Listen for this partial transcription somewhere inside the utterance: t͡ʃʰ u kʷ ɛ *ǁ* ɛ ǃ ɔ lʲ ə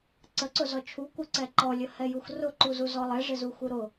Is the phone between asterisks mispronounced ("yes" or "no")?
yes